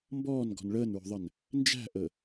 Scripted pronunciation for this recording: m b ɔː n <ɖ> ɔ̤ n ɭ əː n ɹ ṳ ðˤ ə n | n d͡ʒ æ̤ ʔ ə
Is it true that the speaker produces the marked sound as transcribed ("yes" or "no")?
no